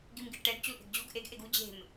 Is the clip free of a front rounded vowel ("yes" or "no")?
yes